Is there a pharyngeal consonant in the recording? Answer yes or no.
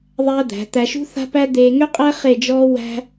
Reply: no